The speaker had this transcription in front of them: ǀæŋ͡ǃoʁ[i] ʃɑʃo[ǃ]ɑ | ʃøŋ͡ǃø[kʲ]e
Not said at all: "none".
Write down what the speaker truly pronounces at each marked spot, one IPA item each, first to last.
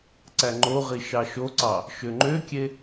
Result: i, ǀ, kʲ

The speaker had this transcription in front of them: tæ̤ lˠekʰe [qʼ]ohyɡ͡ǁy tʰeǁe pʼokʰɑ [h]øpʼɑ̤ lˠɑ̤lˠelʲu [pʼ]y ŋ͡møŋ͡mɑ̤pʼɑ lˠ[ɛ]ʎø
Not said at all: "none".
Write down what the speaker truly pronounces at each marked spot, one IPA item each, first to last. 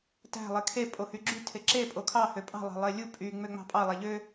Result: pʼ, h, pʼ, æ

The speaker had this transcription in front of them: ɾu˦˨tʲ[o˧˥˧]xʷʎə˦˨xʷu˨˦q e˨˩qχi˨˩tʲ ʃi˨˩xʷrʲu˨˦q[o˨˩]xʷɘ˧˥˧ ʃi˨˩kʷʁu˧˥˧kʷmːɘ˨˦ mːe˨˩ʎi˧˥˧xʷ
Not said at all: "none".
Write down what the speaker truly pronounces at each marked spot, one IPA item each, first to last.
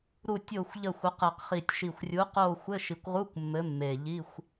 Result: o˦˨, o˦˨

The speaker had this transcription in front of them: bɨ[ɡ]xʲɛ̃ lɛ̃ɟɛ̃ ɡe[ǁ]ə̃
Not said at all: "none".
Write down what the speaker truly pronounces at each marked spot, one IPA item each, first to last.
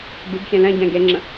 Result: ɡ, ŋ͡ǁ

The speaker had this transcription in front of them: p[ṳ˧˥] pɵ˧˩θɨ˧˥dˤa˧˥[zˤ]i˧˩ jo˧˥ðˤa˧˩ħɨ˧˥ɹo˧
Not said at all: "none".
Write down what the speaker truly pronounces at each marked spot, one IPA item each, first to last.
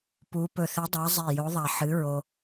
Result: u˧˥, zˤ

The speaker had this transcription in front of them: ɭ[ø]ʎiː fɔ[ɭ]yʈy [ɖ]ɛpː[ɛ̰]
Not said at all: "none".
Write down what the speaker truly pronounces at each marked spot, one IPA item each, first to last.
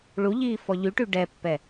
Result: u, ʎ, ɖ, ɛ

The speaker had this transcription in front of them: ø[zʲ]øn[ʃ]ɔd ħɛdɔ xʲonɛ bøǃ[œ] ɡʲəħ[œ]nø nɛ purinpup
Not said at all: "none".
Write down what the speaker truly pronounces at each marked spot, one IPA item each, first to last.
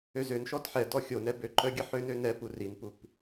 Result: z, ʃ, œ, ø

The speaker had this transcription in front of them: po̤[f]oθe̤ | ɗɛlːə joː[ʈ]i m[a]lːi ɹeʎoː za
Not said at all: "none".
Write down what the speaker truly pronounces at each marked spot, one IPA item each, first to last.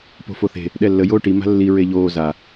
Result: f, ʈ, a̤

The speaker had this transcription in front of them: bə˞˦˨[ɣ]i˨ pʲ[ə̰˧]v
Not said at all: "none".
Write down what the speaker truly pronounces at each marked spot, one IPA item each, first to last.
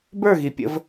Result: ɣ, ə̰˧

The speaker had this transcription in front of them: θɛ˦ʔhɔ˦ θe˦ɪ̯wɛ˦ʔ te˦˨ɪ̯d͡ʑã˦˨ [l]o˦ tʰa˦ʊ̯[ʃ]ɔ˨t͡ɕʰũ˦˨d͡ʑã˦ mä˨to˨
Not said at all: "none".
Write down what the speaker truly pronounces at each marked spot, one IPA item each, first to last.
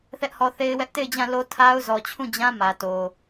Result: l, z

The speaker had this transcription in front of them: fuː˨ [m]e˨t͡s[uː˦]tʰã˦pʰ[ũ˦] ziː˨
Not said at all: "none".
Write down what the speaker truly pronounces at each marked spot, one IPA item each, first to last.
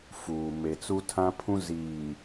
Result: m, u˦, ũ˦

